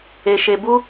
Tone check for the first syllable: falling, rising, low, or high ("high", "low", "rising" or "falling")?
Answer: low